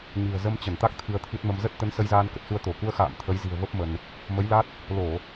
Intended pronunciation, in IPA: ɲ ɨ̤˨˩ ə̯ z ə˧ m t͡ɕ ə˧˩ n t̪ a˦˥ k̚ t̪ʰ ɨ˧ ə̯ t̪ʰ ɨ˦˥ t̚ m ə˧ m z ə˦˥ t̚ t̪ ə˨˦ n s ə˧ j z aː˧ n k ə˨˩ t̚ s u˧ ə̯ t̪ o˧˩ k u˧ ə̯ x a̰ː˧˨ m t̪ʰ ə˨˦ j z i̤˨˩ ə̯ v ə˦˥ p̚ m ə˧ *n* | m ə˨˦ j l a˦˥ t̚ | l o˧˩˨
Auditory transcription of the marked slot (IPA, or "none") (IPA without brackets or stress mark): n